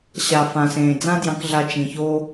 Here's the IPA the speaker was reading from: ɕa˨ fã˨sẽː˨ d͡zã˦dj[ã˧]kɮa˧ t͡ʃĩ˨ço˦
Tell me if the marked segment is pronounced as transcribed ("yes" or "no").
no